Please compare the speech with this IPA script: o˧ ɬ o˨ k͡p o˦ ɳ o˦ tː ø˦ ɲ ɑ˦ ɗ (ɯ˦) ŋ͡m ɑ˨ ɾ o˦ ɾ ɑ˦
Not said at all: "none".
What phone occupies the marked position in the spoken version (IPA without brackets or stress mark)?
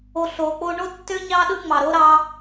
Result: ɯ˦